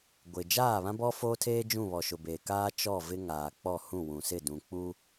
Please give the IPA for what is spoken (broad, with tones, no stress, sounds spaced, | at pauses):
ɡʷ ɪ˨ d͡ʒ aː˦˨ β ã˦ b ɔ˦ f oː˦ tʰ eː˦ d͡ʒ ũ˦˨ β ɔ˨ ʃ ʊ˨ b eː˨ k aː˦ t͡ʃ ɔ˦˨ v ɪ˦ ŋ aː˨ k͡p ɔ˦˨ h ũ˦˨ w ũ˨ s ɪ˦˨ d ũ˨ k͡p uː˦